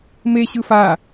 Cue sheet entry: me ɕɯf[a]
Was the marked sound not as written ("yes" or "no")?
no